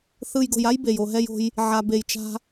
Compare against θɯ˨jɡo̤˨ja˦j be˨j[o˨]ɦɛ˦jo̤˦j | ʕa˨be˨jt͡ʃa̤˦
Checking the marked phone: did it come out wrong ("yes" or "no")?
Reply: no